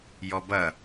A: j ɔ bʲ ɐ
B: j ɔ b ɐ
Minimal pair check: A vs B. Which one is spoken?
B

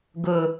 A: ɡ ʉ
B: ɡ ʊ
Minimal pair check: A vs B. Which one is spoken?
B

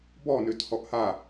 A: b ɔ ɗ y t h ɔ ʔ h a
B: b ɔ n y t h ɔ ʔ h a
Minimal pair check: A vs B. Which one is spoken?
B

